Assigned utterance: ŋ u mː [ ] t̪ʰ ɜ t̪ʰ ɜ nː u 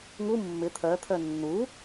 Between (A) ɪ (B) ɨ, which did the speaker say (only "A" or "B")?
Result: A